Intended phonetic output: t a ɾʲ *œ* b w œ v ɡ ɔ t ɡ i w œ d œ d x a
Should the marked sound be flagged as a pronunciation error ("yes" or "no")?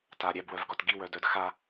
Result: yes